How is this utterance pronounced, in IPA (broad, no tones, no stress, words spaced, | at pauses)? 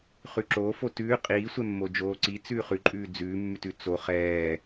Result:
χʉǁoːf otʉː qʼiːsʷɛmːo d͡ʒoːǀi t͡sʉːχʉǃʼʉː d͡zʉːmːʉtʉ t͡so χɛː